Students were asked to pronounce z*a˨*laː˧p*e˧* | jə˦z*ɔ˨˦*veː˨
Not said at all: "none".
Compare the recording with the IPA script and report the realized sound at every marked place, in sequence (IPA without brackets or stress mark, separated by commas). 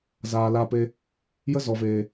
aː˨, e˧, ɔ˨